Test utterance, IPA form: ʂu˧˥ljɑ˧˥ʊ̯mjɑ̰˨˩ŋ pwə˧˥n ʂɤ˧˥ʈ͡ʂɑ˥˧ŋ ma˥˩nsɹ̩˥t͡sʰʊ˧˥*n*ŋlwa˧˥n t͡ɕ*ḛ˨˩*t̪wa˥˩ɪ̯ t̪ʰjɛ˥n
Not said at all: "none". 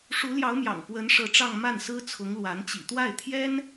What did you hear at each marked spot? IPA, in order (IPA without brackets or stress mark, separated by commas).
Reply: none, ḭ˨˩